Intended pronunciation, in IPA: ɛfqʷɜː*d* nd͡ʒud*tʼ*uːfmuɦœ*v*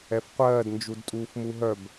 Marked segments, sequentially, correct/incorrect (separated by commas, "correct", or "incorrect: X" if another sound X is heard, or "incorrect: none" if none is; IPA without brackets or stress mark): correct, correct, incorrect: b